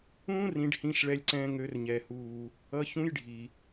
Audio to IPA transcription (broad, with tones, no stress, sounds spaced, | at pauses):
ũː˥ r ĩ˧ ɖ h ĩ˧ ʃ ɭ ɛ˧ lʲ ǀ ɛ̃ː˧ ŋ ø˩˧ r ɲ ɛ˩ h uː˩ | ʌ˧ ç ũ˧˥ j ɖʱ i˩